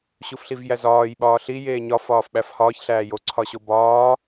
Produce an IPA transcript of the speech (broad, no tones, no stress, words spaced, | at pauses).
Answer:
ɕufɬivjæzɒːj ɓɒːɬi jeːɲɒ fɒːfɓæfhɒːç ɬæːjo ǀʰɒɕobɒː